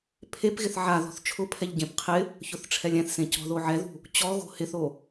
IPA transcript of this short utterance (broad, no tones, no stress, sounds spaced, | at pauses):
pʰ e p ɣ ɪ θ ʕ a ð ɔ̤ θ t͡ʃʰ ʊ pʰ ɛ ʎ ɟ ẽ p qʰ ɪ | ç ʊ θ ʈ͡ʂʰ ɛ lʲ ɛ̃ θ s ẽ c ɔ̤ ð o ʕ ɛ ð ṳ | t͡ɕ ɔ ɣ o̤ h ɪ θ o